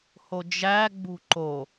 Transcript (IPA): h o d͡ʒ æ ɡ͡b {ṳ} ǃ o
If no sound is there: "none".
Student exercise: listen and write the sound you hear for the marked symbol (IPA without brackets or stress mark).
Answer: ṳ